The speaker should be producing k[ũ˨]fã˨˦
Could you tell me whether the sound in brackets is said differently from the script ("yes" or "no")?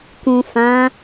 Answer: no